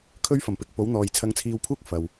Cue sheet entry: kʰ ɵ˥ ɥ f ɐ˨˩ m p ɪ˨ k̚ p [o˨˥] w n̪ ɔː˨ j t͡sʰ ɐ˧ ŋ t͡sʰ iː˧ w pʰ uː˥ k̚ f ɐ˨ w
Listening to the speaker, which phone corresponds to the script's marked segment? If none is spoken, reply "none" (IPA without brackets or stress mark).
o˨˥